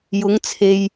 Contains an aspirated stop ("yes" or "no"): yes